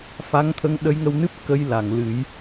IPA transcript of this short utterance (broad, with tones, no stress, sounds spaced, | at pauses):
f a˧˥ ŋ t̪ʰ ə˧˥ ŋ ɗ ə˧˥ j ŋ ə˧ w n ɨ˦˥ p̚ k ə˧˥ j l a˨˩˨ ŋ l ɨ˨˩˦ j